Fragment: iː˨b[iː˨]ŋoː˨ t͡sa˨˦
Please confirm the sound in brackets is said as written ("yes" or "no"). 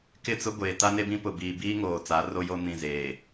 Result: no